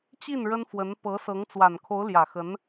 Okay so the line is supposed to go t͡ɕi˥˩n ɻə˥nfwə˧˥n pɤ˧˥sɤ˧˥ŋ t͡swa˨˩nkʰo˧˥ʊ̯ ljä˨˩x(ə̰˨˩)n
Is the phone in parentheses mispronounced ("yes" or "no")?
yes